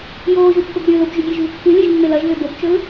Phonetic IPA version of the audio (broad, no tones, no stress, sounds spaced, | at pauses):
j oː ʒ u pː ɵ b ɾʲ ɵː l o b ʒ ʉ ɡʲ e ʒ v ɨ kː ɨ lʲ e ʒ mː e l ɐ ʒ v e b o b t͡ʃ ɵ l